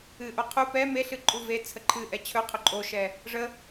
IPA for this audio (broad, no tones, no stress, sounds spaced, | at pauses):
ɨ ʔ o qʰ u p ɛ m e ɬ ɨ ǃʼ u v e t͡sʰ ə ǃʰ ɨ ʔ ɛ t͡ɕʰ ɵ qʰ ɵ ǃʼ o ʃ ɛ | ʐ ə